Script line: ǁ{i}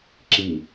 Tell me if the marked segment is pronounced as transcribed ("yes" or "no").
yes